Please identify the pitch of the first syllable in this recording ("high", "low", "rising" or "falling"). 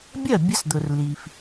falling